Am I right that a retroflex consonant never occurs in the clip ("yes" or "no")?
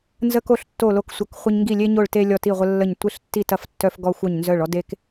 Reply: no